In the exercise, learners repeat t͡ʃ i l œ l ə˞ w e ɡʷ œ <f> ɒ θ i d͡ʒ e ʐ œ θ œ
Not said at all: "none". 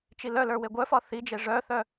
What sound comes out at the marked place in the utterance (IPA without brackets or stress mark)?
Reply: f